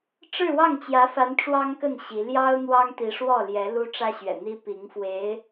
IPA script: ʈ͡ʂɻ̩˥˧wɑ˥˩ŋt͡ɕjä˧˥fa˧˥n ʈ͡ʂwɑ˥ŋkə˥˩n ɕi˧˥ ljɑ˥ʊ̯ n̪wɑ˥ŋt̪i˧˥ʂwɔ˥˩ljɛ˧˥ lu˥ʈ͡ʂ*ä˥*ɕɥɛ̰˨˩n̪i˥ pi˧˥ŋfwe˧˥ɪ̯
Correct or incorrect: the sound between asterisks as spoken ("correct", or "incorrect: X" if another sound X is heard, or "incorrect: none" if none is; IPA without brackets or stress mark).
correct